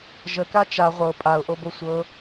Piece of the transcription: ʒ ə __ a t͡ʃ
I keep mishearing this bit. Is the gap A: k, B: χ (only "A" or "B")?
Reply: A